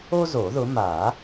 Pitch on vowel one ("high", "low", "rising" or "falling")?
high